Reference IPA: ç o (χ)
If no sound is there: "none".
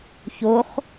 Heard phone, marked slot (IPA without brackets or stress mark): χ